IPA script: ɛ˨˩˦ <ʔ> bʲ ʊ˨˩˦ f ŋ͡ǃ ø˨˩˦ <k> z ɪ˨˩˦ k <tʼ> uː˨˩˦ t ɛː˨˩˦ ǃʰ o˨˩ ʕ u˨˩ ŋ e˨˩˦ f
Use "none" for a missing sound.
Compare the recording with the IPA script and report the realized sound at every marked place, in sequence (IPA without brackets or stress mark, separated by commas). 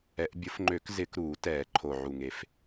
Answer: ʔ, k, ɾ